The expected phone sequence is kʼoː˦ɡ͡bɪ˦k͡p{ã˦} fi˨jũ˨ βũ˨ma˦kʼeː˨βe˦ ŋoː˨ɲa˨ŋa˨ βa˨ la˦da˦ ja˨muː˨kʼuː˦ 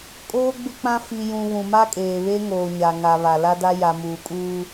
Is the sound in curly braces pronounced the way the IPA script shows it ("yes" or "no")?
yes